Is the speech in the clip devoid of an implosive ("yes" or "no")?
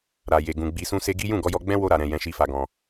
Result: yes